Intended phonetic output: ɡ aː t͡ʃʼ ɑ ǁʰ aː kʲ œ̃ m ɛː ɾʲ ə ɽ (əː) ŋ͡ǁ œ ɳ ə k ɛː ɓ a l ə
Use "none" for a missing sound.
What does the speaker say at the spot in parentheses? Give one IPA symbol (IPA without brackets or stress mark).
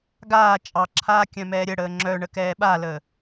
əː